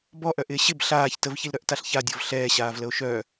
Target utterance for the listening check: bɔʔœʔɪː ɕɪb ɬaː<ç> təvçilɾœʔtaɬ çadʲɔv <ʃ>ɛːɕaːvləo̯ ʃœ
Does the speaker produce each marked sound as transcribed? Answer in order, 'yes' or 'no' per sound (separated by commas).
yes, no